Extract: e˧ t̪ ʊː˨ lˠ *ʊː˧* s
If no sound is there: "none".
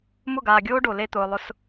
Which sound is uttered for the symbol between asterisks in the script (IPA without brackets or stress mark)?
ʊ˧